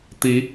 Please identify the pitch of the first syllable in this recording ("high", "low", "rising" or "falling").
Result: rising